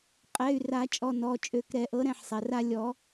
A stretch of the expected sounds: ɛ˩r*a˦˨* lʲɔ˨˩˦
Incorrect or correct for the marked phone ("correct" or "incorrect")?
correct